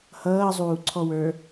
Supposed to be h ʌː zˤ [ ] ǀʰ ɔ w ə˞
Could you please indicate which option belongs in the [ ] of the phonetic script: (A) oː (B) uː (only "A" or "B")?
B